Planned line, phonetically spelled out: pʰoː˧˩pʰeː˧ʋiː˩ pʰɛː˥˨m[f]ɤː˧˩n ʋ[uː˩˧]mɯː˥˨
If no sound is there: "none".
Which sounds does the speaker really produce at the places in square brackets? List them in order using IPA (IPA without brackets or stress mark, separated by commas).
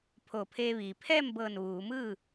b, uː˩˧